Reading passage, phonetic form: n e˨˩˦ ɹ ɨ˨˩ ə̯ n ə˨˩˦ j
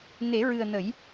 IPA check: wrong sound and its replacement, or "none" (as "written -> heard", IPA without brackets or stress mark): none